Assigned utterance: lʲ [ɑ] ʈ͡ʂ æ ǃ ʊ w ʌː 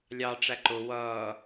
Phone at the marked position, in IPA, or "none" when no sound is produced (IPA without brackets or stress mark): ɑ